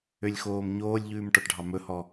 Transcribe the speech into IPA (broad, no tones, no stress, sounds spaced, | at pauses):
ø lʲ x oː m ɲ oː lʲ ʎ ʉː m ʈ ɔ ʈ ɖʱ ɑ m ɵ h ɔ